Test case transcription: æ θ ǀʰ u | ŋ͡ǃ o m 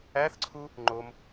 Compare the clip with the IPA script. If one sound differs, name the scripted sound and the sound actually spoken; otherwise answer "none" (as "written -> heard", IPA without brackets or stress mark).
none